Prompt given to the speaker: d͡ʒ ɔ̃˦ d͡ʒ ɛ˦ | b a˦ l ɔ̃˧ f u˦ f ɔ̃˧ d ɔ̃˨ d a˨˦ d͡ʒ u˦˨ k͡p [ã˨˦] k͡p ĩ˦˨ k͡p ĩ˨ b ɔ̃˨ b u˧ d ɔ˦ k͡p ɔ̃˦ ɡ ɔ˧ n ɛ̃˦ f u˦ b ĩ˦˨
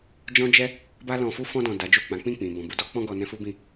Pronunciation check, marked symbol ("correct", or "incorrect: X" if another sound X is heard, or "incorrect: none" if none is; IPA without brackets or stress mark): correct